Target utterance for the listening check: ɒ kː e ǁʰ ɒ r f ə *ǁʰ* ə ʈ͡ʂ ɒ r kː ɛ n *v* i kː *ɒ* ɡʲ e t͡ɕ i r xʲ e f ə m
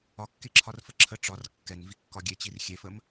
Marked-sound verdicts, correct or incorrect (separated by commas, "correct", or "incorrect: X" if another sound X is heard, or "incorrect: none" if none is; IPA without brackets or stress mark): correct, correct, correct